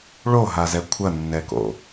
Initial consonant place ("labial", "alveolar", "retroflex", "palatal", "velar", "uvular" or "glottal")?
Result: retroflex